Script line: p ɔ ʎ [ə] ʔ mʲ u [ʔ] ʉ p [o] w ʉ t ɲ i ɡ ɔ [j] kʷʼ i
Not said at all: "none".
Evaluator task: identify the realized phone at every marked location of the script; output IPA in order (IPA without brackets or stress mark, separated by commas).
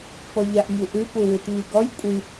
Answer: a, ʔ, u, j